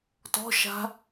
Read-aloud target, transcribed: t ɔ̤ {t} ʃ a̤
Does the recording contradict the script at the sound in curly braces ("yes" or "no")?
yes